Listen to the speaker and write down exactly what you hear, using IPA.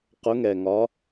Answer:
q ʊ˨˦ ŋ ɛ˩ ŋ ɒ˨˦

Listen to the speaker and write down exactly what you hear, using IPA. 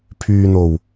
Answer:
pʰ yː˨ n̪ o˨˩ w

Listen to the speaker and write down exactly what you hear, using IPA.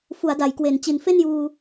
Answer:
f u˩˦ a̯ d a˩˦ j k w e˨˩ n t͡ɕ i˨˩ n f e˥˩ n j uː˧

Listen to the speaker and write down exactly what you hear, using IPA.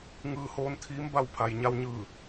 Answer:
ŋ ɯː˧ h oː˧ n t̪ʰ iː˧˥ m b a˥˨ w pʰ a˩ j ɲ a˧ w ɲ ɯː˧˩

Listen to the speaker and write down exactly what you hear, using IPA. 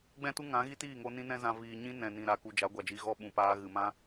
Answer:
ɡ͡b ɛ̃˦ t u˦ ŋ ã˨˦ ɣ i˦ t iː˦˨ ŋ o˧ n ĩ˦ n ɛ̃˦ z ã˧ v iː˨ ɲ ĩ˦ n ɛ̃˨ n ĩ˨ ɾ a˨ k u˨ d͡ʒ a˨˦ ɡʷ a˨ d͡ʒ i˧ ɣ ɔ˦ ɓ ũ˨ p aː˧ ɣ ɨ˨ m ã˦

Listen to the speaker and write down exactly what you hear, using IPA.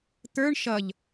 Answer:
t̪ ə˞ ɳ ʃ ʌ ʎ

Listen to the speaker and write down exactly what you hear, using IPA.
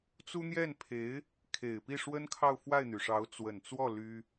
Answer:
t͡s u˥ n̪ j ɛ˥˩ n pʰ e˧˥ ɪ̯ | kʰ e˨˩ ɪ̯ p i˥˩ ʂ w ə˥ n kʰ ɑ˥˧ ʊ̯ f w a˥˩ ɪ̯ n̪ y˩ ʂ ɑ˧˥ ʊ̯ t͡s w ə˨˩ n t͡s w ɔ˥˩ l y˥

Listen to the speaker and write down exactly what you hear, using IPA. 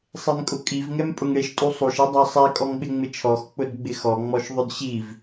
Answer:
sˤ e m kʼ ʊ kʼ i v ŋ ɛ m pʼ ʊ ŋ ɽ e ʃ tʼ u sˤ u ʃ i dˤ a sˤ ɛ kʼ ɔ ŋ ɓ ɪ ŋ͡m ɪ t͡ʃʰ ɔ x k͡p ʊ d ɡ͡b ɪ x ɔ ŋ͡m ɔ ʃ ðˤ ʊ d ɕ i v

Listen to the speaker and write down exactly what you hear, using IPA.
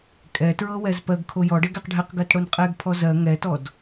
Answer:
kʼ ɛ t ɹ ɤ w ɛ z p ɜ ɡ kʰ o j ɔ ɖ ɛ ɡ ɛ q ɖʱ ɛ q ɡ ɜ t ɽ o n qʼ ɛ ɡ pʰ ɔ z ɜ ŋ ɛ t ɔ d

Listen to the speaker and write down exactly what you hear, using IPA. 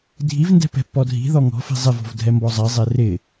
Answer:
dʱ i v n d ɛ̤ p ɛ̤ pː ɔ dʱ i̤ ð ɔ ŋ ɔ̤ f i̤ zˤ ɪ v ɔ̤ v dʱ ɛ m b ɔ zˤ ɛ zˤ e r ɪ

